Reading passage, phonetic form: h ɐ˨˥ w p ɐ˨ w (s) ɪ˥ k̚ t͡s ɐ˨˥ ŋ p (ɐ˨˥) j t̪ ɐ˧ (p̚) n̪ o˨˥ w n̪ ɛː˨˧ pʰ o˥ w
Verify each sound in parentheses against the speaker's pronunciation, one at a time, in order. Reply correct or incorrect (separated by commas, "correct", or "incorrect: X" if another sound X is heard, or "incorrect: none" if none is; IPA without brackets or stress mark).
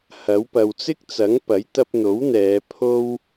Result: incorrect: t͡s, correct, correct